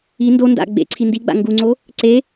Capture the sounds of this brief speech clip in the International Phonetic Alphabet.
i n d o n d a̰ ɡ͡b ḛ ǀʰ i n d i ɡ͡b a̰ ŋ ɡ u ŋ͡ǀ o | ǀ e

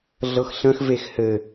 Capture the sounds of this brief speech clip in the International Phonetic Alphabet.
ɮ ɤ x ɬ ə̃ x v e x h ɘ

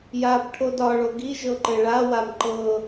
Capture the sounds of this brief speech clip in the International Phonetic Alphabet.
j a b ʈʰ o d ɒ ɭ o ɡ i ʒ ɤ ǃ ɘ ɭ a w a m ǃ ɤ

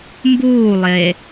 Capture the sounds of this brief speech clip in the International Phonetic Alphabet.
m b uː lˠ e

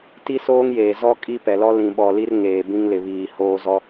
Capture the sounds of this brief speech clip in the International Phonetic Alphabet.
t i˦ s oː˦ ŋ j eː˨ z ɔ˦ kʼ i˦ p ɛ˨ l ɔ˦ l ĩ˨ ɓ ɔ˨ l i˦ r ŋ eː˨ b ĩ˦ ŋ l ɪ˨ β iː˨ h oː˦ z ɔ˦

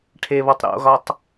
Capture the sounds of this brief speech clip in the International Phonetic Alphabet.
ʈʰ e β ɔ tˤ ɾ o̰ ɣ ɒ tˤ

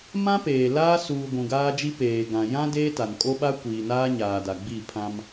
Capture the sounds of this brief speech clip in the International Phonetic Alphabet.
m ã˦ p eː˨ l aː˦ s uː˨ ɡʷ ũ˨ ɡ aː˦ d͡ʒ i˦ p eː˨ ɡ ã˨ j ã˦ d eː˦ t a˨ n kʼ o˦ ɓ a˦ kʷ iː˨ n aː˦ ɲ aː˨ d a˨ ɡ͡b i˦˨ pʰ ã˦ m

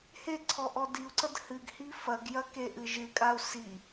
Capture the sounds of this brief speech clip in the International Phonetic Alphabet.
h e ǀʰ ɔ ʔ ɔ d i u̯ ǀ ɐ d h ɨ ɡ h i f ɐ ɡ j ɐ k e ʔ ɨ ʒ ɨ kʼ a u̯ s i

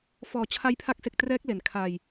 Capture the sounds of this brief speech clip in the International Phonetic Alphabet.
f ɔː˨˩ t͡ɕʰ a˦˥ j pʰ a˦˥ k̚ s e˨˩ k̚ t r ɛː˦˥ k̚ l e˨˩ n kʰ a˧ j

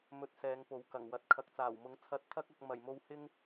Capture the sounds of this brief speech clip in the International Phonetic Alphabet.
m ɵ˧ t̚ s ɛː˨˧ ŋ p o˨˥ w k ɐ˨˩ ŋ w ɐ˨ t̚ kʰ ɐ˨ k̚ t͡s aː˨˩ w m ʊ˨˥ ŋ t͡sʰ ɐ˧ t̚ t̪ʰ ɐ˥ k̚ ɐ˧ k̚ m ɐ˨˩ j m o˧ w h ɪ˥ ŋ

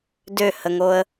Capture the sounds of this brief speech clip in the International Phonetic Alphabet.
d ø h ə ŋ o ə̯

